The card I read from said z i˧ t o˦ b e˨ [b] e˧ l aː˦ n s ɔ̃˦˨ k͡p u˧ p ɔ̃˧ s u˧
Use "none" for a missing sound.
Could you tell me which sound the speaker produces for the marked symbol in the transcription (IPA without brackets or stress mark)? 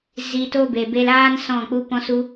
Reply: b